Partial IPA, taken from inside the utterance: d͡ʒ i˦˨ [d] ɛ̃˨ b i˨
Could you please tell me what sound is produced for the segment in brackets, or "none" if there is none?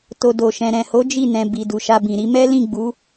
n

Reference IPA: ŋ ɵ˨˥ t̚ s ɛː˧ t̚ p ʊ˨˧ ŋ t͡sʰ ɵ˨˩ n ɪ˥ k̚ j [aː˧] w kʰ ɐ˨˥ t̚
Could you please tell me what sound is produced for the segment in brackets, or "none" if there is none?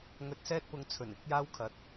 aː˧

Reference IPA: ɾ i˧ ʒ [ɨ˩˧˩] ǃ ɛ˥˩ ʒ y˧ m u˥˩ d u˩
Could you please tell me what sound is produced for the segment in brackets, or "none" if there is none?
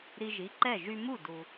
i˩˧˩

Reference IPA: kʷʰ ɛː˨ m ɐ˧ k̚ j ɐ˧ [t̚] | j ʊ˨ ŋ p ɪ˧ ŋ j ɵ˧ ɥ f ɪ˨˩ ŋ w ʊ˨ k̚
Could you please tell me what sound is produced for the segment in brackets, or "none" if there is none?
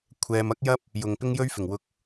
p̚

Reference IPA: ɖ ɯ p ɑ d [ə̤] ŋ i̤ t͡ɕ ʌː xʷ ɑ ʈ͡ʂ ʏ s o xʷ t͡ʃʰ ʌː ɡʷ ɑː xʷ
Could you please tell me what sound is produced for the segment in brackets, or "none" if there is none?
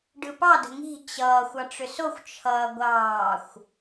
ə̤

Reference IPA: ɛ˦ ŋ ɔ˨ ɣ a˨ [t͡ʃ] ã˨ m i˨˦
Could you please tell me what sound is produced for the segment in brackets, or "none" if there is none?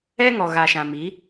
ʃ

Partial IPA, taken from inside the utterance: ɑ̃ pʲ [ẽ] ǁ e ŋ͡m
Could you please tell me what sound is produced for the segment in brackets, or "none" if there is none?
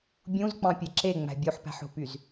e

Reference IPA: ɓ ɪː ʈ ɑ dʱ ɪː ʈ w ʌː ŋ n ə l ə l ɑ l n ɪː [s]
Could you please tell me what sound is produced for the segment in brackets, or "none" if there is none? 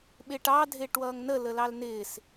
s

